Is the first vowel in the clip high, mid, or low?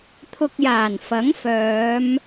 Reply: high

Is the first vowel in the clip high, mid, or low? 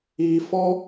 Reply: high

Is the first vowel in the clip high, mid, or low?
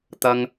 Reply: low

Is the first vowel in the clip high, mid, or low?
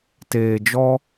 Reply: mid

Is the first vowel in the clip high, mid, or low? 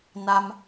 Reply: low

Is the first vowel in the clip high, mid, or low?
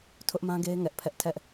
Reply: high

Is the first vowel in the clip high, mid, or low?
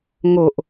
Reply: mid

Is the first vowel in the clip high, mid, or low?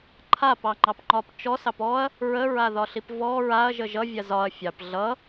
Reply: low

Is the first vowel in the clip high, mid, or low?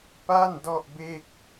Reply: low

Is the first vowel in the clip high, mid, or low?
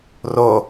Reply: mid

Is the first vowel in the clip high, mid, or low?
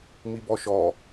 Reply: high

